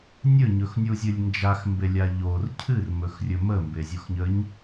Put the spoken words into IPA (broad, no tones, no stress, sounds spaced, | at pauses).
nʲ ɵ ɲ ɵ x nʲ u zʲ ɨ lʲ n d͡ʒ a x m b e lʲ a ʎ o r cʰ ɨ r m ɵ x rʲ ɵ m ə m b e zʲ o x ɲ ə ɲ